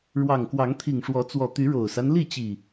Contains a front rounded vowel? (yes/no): yes